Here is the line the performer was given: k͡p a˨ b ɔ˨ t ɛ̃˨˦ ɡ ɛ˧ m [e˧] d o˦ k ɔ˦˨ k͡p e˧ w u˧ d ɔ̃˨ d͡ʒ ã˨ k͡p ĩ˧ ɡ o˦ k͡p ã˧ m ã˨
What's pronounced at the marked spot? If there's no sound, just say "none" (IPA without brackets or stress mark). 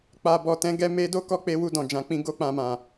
e˧